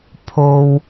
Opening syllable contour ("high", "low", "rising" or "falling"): low